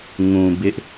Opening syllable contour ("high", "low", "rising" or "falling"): low